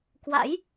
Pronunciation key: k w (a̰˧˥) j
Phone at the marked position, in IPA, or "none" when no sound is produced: a̰˧˥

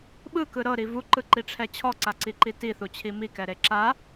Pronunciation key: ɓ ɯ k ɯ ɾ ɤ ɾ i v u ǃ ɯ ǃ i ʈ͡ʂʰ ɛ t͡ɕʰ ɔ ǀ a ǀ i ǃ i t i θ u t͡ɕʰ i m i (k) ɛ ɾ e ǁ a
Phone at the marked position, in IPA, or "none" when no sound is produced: k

